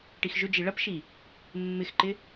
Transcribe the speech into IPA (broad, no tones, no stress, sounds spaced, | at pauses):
ʈ i x ʒ ʊ d͡ʒ ɪ ɭ ɐ p ʃ i | mː ɪ x ǃ ɪ